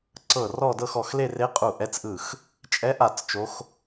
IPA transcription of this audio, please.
ǀ ɤ˧˩ r ɔ˥˧ d ɤ˥˧ x ɔ˧˩ x l e˥˧ r e˧˥ qʼ u˧˩ ʔ ɛ˧˥ t͡s ʔ ɯ˧˩ x | t͡ʃʼ ɛ˧˥ ʔ a˧˩ t͡s t͡ʃ o˧˥ x

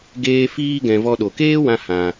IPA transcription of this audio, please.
ɡ eː˦ f iː˦ ɡ ɛ̃˧ v ɔ˧ ɗ o˨ k eː˦ w ã˧ h ã˧

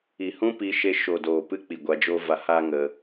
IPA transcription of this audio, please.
i˨ h ũ˦ p i˧ ʃ e˧ ʃ o˨ d oː˨ p ɨ˧ k͡p i˨ ɡʷ a˧ d͡ʒ o˦ v a˧ h aː˦ ŋ ə˧

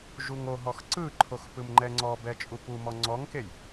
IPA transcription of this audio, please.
ʒ u ŋ o ɦ ɔ x ǀ ɯ ǃʰ o x p ɯ m ŋ͡ǃ ɛ ŋ͡ǀ ɔ b ɛ t͡ʃʼ u p u m ɔ ŋ͡ǀ ɔ ŋ k e j

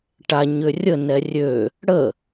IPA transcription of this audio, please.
ʈ a ɲ ʏ rʲ ə n ɛ rʲ ø | ɽ ə

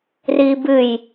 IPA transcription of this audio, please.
r iː b ɨ j

